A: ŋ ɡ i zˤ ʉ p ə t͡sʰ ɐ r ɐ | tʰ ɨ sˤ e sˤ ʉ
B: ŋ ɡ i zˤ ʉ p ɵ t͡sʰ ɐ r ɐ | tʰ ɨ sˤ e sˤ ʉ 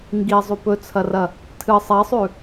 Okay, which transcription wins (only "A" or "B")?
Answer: B